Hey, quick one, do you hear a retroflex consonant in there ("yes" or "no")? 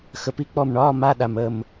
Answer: yes